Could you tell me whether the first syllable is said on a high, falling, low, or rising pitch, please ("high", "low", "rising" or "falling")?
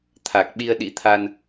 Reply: low